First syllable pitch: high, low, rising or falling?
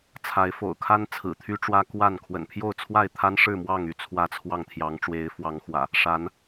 rising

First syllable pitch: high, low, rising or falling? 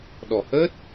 low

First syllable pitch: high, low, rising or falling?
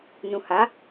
low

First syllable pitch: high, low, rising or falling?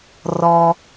low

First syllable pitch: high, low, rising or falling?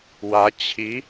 rising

